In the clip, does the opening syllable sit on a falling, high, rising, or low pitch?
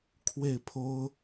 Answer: falling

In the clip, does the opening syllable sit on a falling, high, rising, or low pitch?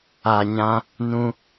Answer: low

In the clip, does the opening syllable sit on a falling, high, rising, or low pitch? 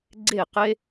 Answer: falling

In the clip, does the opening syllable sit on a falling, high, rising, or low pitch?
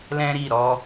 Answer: high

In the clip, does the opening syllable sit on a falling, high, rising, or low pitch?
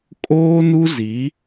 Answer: high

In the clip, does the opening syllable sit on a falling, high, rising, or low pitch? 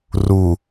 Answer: low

